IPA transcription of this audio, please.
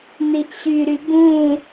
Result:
n̪ i ʔ ɕ y ɾ y b ũ

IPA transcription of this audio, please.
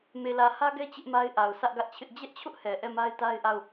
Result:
m e˨ l ä˨ h ä˦ ɡ ɛ˦ t͡ɕ ɪ˦ ʔ m a˦ ɪ̯ ʔ a˨ ʊ̯ sʰ ä˦ ʔ ɡ ä˦ ʔ t͡ɕʰ ɪ˦ ʔ d͡ʑ ɛ˦ ʔ t͡ɕʰ ʊ˦ ʔ h ɛ˨ ʔ ɛ˦˨ m a˦ ɪ̯ t a˦ ɪ̯ ʔ a˦˨ ʊ̯

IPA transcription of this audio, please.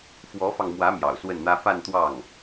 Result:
f w ɔ˧˥ f ɑ˧ ŋ m w ä˧˥ m j ɑ̰˨˩ ʊ̯ s w ə˥˩ n n̪ ä˥ f a˥˧ n t̪ w ɑ˥˩ ŋ

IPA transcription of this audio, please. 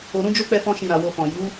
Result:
o˨ ɾ ũ˧ d͡ʒ o˦ k͡p ɛ˧ f ɔ̃˧ ʃ ĩ˨ ɾ a˨ w o˧ f ɔ̃˨ j u˨˦

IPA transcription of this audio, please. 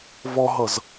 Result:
v ɔ ɦ ʌ z

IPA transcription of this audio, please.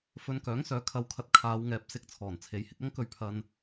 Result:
f ɵ˧ n k œː˨˥ ŋ s œː˨˧ kʰ ɐ˨ w kʰ ɐ˨ t̚ kʰ aː˨˧ w ŋ ɛː˨ p̚ s ɪ˧ k̚ t͡sʰ ɔː˨˩ n t͡sʰ e˨ j h ɪ˧ k̚ ɐ˥ ŋ k ɵ˧ ɥ pʰ ɐ˧ n

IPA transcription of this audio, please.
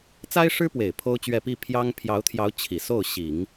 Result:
t͡s a˥ ɪ̯ ʂ ɻ̩˥ p w e˨˩ ɪ̯ pʰ o˥ ʊ̯ t͡ɕ ɥ ɛ˥˧ p i˥˩ pʰ j ɑ˥ ŋ pʰ j ɑ˧˥ ʊ̯ t̪ʰ j ɑ˧˥ ʊ̯ t͡ɕʰ i˨˩ s o˥˩ ʊ̯ ɕ i˨˩˦ ŋ

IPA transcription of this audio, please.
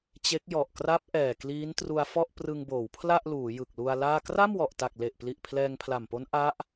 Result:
t͡ɕ e˦˥ k̚ j ɔ˨˩ ʔ k r a˦˥ p̚ ʔ ɛː˨˩ k l iː˦˥ n t r u˧ a̯ f ɔ˥˩ ʔ p r ɯ˧ ŋ b oː˩˦ w pʰ l a˥˩ ʔ l uː˩˦ j ɯ˨˩ k̚ l u˧ a̯ l aː˥˩ k r a˥˩ m w ɔ˨˩ ʔ t a˨˩ k̚ l e˨˩ ʔ p l i˨˩ ʔ pʰ l ɛː˧ ŋ pʰ l a˨˩ m p o˦˥ n ʔ a˦˥ ʔ

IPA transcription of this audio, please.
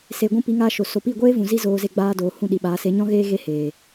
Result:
s e˨ ɡʷ ũ˧ p i˨˦ ŋ aː˧ ʃ o˨ s o˨ p i˦˨ ɡʷ eː˦ v ũ˨ z i˦ z oː˧ z e˧ ɡ͡b aː˧ d oː˨ h ũ˦˨ ɗ i˨ ɓ aː˨˦ s e˨˦ ɲ ɔ̃˦ ɣ eː˦ ɣ e˦ h eː˨

